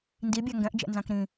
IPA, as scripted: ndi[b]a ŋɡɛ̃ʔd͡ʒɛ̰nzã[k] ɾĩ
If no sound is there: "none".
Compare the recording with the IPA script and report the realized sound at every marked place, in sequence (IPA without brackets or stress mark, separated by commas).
bʲ, k